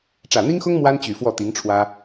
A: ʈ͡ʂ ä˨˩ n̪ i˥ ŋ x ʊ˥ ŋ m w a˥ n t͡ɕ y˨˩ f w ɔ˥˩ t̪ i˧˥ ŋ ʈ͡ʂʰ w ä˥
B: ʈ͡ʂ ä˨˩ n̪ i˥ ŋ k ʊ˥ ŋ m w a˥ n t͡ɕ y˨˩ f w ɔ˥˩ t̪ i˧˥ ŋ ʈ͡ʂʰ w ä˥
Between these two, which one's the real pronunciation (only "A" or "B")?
A